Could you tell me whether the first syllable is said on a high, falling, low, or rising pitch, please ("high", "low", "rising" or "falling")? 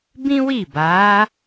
high